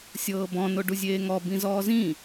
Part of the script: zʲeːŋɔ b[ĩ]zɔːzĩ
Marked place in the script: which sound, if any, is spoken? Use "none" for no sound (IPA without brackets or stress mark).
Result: ĩ